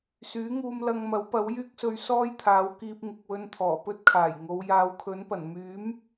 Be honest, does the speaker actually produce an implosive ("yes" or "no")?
no